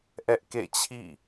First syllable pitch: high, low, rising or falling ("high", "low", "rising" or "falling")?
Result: high